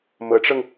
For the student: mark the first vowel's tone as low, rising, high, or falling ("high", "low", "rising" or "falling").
rising